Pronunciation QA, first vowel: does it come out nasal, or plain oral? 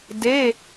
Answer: oral